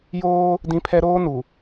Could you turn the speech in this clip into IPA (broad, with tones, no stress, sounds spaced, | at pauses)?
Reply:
j oː˦ | d ĩ˦ pʰ ɛ˦ ɾ oː˦ n u˨